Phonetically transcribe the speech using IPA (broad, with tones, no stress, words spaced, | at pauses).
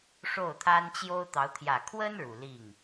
ʂo˥˩ʊ̯t̪ʰa˥n t͡ɕjo˥ʊ̯t̪ɑ˧˥ʊ̯ t̪ʰjä˨˩kʰwə˥n ɻu˨˩li˥˩ŋ